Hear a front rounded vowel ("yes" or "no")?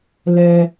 no